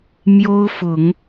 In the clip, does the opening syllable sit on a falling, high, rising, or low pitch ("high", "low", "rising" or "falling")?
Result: high